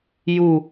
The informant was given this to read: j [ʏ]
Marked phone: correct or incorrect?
incorrect